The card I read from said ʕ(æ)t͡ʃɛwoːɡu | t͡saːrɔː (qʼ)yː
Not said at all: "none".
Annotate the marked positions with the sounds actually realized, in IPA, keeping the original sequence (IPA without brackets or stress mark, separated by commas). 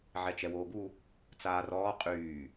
ɛ, qʼ